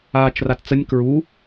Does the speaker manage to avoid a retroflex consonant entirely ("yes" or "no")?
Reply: yes